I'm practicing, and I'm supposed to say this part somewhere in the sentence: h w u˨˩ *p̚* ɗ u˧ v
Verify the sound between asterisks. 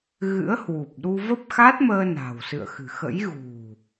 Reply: correct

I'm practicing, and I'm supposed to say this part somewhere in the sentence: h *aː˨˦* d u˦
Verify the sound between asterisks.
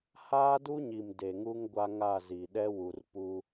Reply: incorrect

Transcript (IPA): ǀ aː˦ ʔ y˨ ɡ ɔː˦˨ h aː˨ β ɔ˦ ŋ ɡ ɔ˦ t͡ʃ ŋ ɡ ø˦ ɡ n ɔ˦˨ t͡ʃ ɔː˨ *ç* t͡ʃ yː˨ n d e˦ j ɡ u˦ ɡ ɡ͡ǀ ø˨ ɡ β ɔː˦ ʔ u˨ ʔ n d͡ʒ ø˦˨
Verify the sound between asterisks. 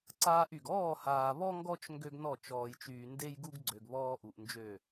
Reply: incorrect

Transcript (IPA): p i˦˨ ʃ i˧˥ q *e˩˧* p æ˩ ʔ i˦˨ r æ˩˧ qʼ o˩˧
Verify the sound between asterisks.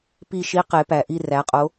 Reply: correct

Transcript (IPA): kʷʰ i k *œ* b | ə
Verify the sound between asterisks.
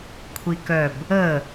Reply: correct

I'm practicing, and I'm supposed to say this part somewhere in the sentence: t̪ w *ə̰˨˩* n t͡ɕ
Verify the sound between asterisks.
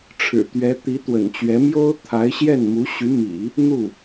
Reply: correct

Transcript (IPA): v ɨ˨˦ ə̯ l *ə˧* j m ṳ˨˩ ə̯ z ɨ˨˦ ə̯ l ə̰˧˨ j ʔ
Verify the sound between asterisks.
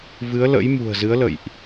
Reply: incorrect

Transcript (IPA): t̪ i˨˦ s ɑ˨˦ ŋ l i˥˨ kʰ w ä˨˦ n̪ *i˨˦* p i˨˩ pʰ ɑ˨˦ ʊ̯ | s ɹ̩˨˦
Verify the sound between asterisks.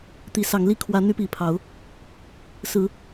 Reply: incorrect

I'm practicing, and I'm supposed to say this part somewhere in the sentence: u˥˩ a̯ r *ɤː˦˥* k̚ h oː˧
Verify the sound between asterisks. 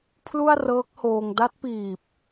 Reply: correct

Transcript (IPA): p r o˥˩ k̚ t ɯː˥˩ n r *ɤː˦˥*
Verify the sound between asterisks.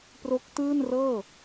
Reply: incorrect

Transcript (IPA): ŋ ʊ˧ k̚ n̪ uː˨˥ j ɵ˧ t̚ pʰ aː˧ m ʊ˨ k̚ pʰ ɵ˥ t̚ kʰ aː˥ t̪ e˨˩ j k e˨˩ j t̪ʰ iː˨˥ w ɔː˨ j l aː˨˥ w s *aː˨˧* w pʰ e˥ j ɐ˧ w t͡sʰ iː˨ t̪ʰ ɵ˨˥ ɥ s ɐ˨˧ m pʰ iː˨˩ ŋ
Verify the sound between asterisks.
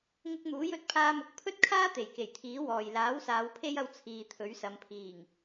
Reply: correct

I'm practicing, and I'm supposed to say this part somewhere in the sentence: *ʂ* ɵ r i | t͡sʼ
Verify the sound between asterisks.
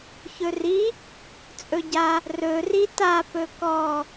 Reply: incorrect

